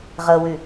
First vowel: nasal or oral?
oral